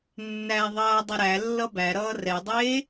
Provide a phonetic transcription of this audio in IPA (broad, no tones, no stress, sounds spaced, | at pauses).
nː æ ðˤ ʌː dˤ ʌ ɾ æ lː ʌ b æ ɾ ʌː r ɛ dˤ eː